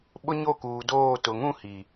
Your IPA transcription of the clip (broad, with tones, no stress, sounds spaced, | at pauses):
ɓ ʊ˦ ɲ o˦˨ k uː˨ d oː˦˨ t ʊ˨ ŋ ũ˦˨ h i˨